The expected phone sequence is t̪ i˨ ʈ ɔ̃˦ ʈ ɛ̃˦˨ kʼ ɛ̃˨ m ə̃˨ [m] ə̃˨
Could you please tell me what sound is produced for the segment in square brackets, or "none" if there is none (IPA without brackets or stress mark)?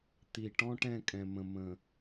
m